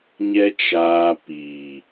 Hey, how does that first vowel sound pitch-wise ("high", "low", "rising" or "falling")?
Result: high